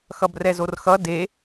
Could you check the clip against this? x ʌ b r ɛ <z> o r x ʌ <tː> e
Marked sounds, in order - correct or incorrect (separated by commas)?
correct, incorrect